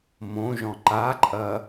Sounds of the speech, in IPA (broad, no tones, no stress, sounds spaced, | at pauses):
m õ ʒ ɔ̃ ǃ a ǃʼ ɐ